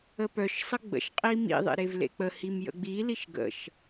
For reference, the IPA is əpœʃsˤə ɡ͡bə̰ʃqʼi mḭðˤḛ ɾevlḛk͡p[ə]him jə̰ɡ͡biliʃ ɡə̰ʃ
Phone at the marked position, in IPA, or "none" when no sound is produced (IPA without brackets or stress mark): ə